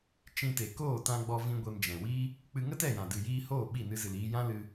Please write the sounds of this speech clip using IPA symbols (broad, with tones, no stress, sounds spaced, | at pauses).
t͡ʃ ĩ˧ t e˨ k oː˦˨ t ã˧ ɡ͡b ɔ˧ v ĩ˧ ɡʷ e˧ m d͡ʒ ɛ̃˨ w iː˦ | k͡p ɨ˧ ŋ ə˦ t ɛ˦˨ j ã˨ d ɨ˨ j iː˧ h oː˦˨ ɓ i˦˨ n ɨ˧ z ɨ˨ l iː˧ j ã˦ l ɨ˧